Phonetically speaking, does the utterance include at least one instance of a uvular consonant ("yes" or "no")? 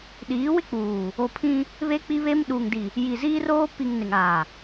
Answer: no